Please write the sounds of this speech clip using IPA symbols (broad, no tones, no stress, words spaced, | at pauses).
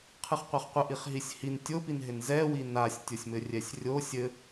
qʰɨχqʷaχqʷɘ ʔiχɦisʲhin tʲopinɦɪn zɛwi nasʲ tʲosʲmɘrʲɛsʲrʲo sʲɘ